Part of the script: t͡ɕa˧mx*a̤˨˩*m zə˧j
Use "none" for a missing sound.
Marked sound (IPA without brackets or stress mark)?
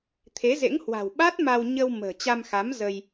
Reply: a˨˦